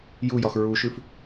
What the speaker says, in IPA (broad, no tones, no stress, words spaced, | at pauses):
jujɒx ɹuʃʉf